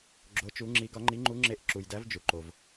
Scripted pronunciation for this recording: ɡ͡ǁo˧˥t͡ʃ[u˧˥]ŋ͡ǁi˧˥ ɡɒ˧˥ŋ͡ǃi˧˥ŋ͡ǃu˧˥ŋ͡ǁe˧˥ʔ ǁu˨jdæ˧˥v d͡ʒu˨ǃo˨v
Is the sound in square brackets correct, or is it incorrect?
correct